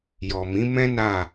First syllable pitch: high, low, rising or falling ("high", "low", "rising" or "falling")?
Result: low